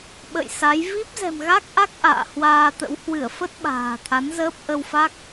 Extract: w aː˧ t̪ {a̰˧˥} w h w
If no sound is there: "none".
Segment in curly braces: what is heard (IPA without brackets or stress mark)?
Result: ə̰˧˥